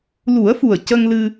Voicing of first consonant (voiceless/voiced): voiced